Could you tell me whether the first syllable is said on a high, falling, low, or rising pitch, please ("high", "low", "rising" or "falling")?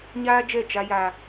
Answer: high